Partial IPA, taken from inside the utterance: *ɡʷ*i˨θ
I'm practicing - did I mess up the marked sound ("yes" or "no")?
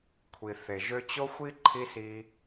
yes